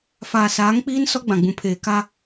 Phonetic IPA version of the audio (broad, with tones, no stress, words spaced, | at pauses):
faː˨saː˨˦ŋk͡piː˦n sɔ˦ɡ͡bã˨ɡ͡bũ˨ pʰeː˨ka˦